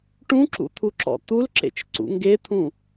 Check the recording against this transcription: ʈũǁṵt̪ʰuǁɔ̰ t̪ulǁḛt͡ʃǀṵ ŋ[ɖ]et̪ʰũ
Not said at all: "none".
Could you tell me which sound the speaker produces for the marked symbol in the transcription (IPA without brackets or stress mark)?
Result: ɡ